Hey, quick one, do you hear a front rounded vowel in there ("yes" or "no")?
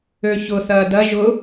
yes